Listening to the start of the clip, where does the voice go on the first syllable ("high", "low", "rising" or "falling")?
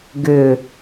low